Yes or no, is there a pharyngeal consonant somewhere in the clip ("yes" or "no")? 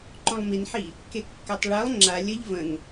yes